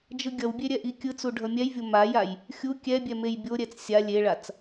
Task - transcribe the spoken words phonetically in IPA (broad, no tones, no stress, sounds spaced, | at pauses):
d͡ʒ ɯ ɡʲ ʌ w bʲ e ɾʲ ɛ ʔ i kʲ ɯ t͡s u ɖʱ ʌ mʲ ɛ j vʲ o m a j a j | xʲ u kʲ ɛ bʲ ɛ m e j bʲ o ɾʲ ɛ t͡s sʲ a lʲ e ɭ a t͡s